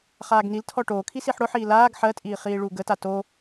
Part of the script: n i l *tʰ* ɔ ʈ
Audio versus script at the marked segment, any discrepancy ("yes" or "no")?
no